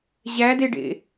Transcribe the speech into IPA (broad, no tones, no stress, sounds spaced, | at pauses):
ʑ æ d e ɖ ḛ